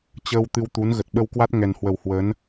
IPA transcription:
t͡ɕ əː˧ w t̪ ɨ˧ w t̪ u˨˦ n ɣ ə˨˩ t̚ ɓ ə˧ w k w a˦˥ t̚ ŋ ɛ˨˩ n h w ə˨˩ w h w ə˨˦ n

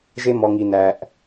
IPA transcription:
ʒ e˧ m ɔ˨ ŋ i˨ n æ˨ ʔ

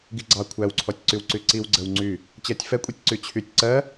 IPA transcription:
ɡ i ɡ͡ǀ ɑ kʷʰ æ w ǀʰ ɔ tʲ ǀ y w ǀ y ǀ i w ɡ͡ǀ ə w ŋ͡ǀ y | t͡ɕ ɜ tʲ f ɛ kʷʼ i tʲ ǀ y t͡ɕʰ y tʲ ǀ ɜ

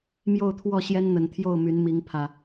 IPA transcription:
m j o˥˨ ʊ̯ t̪ʰ w ɔ˥˨ ɕ j ɛ˦ n n̪ ə˨˩ n t̪ʰ j o˥˨ ʊ̯ m y˨˦ n m i˨˦ ŋ pʰ ä˨˩

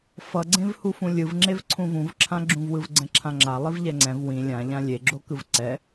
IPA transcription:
f ʌ ɡ͡ǀ ẽ v h u f ũ lʲ ɯ v ŋ͡ǁ e v ǀʰ ũ v ũ v ǁʰ ã ɡ͡ǁ ũ v w ɯ v ɡ͡ǀ ɛ̃ ǁʰ ã ŋ͡ǁ a lˠ i v ʎ ɛ ŋ͡ǀ ɛ̃ v w ĩ lʲ ã ʎ ã lʲ e ɡ͡ǁ o k ɯ v ǀ ɛ

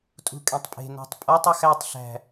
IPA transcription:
tʼ ṳ kʼ ẽ tˤ pʼ e̤ n æ̤ tˤ pʼ ɒ tˤ ɒ x æ tˤ ɬ æ̤

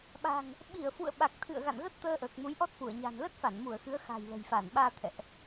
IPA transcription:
ɓ a̤˨˩ ŋ | ɓ i˧˩ ə̯ f ṵ˧˨ ə̯ ɓ a˨˩ k̚ t̪ʰ ɨ̰˧˨ ə̯ ɣ a̰˧˨ n ɣ ə˦˥ t̚ t̪ əː˧ ʔ əː˨˩ k̚ m u˨˦ j ʔ ɔ˦˥ t̚ f u˧˩ ə̯ ɲ a̤˨˩ n l ə˦˥ t̚ f a˧˩ n m u˧˩ ə̯ x ɨ˨˦ ə̯ x a̤˨˩ j l ə̤˨˩ j f a˧˩ n ɓ aː˧ t̪ʰ ɛ̰˧˨ ʔ

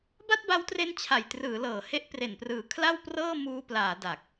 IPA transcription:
b a˥˩ t̚ b a˦˥ w t r e˦˥ n t͡ɕʰ a˨˩ j t r ɯː˩˦ l ɤː˩˦ h e˦˥ ʔ p r e˨˩ n p r ɯː˩˦ kʰ l a˥˩ w p r ɤː˥˩ m uː˧ p l aː˩˦ d a˨˩ k̚

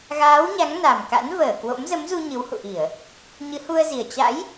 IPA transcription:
ɣ aː˨˦ w ɲ a˨˦ ŋ n a˨˩ m k a̰˧˥ n v əː˧˩ k w o̰˧˥ m z ə˨˦ m z u˧ ɲ ɨ˨˦ w h ṵ˧˨ ʔ i˧˩˨ ə̯ | ɲ ɨ˨˦ h u˧ ə̯ z i˨˩ ə̯ t͡ɕ a̰˧˥ j

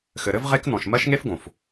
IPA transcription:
x ɘ˨ ɾ ɘ˦ v ʁ e˦ k n ɔ̃˨ ʃ m ɜ˦ ʃ ŋ e˦ f ɡ õ˨ f

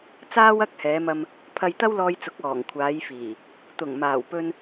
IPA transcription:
t͡s aː˥ w ɐ˥ k̚ h ɛː˨˧ m ɐ˧ m | pʰ ɐ˧ j t̪ ɐ˥ w l ɔː˧ j t͡s ʊ˨˥ k̚ ɔː˨˩ ŋ kʷʰ aː˨˧ j f iː˨˩ | t̪ ʊ˨˩ ŋ m aː˨˩ w p ɵ˧ n

